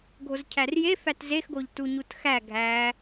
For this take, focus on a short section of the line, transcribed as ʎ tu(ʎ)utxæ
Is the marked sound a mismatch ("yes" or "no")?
yes